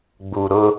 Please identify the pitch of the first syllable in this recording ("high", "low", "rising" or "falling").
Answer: low